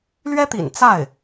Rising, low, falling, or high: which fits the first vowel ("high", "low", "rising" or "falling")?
high